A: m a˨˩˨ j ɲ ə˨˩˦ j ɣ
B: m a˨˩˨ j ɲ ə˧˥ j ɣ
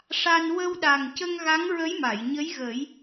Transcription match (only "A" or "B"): B